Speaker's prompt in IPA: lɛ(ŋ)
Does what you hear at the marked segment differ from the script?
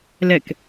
yes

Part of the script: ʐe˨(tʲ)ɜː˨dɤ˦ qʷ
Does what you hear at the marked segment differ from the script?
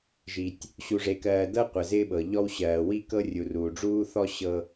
yes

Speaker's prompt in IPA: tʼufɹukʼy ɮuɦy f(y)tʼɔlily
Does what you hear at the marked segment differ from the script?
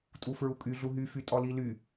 no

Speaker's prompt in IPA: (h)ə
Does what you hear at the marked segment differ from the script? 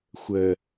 yes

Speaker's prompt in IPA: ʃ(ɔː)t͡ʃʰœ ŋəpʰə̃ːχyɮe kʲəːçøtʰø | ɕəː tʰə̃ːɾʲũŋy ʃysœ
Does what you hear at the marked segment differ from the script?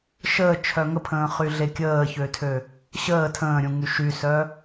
yes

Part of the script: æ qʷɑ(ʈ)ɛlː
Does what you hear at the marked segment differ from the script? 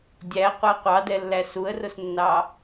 yes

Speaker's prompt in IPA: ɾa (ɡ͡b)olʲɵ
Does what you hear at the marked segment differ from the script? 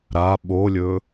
yes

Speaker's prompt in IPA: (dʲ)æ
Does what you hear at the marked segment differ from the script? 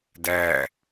yes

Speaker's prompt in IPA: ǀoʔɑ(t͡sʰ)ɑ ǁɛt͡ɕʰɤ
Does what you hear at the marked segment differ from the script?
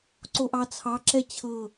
no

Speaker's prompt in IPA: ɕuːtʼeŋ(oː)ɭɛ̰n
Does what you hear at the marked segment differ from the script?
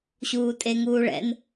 yes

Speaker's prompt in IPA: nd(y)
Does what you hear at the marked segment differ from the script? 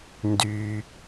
no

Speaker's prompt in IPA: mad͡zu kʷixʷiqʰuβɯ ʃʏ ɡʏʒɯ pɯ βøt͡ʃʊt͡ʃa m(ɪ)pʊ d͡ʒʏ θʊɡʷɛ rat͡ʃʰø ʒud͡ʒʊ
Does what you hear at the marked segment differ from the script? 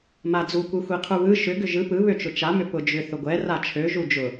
yes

